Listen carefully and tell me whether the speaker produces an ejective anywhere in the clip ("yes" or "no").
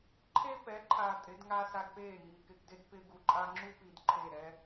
yes